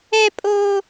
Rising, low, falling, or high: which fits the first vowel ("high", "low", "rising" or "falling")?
high